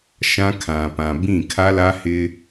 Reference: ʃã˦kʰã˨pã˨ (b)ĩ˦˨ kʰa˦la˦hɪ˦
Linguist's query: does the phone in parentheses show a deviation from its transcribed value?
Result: no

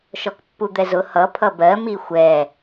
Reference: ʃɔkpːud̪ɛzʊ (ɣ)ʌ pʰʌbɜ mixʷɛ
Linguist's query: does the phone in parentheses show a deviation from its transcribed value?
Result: yes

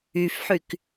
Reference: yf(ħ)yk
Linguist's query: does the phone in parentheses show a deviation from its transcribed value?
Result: no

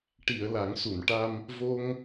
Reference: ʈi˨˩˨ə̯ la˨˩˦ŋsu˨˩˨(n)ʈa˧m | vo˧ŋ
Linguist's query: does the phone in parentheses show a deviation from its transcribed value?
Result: no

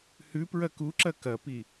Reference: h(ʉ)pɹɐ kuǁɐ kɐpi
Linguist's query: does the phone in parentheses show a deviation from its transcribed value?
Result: no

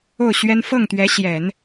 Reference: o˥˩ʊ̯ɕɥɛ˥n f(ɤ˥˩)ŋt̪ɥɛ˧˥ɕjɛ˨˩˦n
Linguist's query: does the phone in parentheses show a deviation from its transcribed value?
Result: no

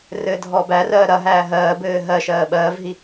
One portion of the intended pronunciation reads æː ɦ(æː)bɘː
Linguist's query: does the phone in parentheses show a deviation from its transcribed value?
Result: yes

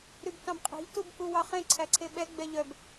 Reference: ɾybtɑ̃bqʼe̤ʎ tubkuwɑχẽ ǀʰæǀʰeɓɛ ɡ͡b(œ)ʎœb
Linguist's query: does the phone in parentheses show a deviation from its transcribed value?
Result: yes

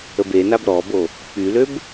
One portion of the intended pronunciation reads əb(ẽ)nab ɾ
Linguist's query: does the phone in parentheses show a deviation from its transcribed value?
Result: yes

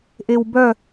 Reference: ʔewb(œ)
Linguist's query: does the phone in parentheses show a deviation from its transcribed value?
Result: no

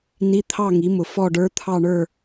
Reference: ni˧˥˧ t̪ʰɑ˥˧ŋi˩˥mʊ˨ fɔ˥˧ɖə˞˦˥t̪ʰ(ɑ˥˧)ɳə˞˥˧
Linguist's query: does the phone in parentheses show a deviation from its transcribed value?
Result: no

